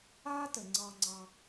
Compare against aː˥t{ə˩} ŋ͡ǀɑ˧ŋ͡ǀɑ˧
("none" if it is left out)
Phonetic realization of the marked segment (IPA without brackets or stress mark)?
ə˩